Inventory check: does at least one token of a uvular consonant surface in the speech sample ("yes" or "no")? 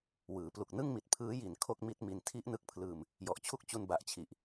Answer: no